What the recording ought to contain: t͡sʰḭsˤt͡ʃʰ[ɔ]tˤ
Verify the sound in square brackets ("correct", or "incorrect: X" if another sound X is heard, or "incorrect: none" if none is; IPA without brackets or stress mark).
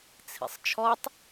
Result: correct